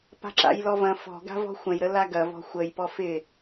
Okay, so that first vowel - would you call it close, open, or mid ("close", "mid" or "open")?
open